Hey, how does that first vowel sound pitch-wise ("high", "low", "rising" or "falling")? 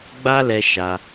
high